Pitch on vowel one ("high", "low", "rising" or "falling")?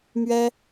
high